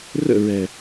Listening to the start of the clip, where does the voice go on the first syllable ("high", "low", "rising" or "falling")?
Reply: falling